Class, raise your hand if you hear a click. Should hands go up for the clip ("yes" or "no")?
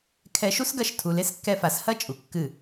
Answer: no